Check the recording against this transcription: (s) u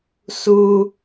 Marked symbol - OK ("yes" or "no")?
yes